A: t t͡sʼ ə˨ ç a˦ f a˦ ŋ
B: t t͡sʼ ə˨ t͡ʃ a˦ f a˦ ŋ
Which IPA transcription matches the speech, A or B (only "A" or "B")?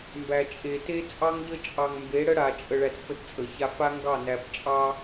A